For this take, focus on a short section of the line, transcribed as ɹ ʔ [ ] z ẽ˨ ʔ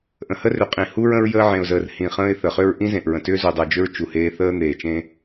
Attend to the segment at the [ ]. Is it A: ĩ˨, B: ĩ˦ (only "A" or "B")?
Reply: B